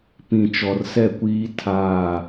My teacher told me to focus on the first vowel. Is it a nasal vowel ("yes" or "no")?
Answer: yes